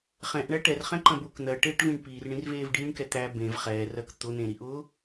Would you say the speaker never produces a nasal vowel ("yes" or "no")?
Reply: no